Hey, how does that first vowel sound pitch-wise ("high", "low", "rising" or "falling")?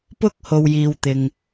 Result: high